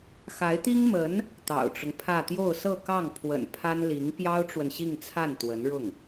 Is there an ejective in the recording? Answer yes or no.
no